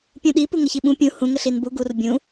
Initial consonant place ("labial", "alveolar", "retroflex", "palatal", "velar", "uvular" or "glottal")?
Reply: labial